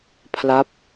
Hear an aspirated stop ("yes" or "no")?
yes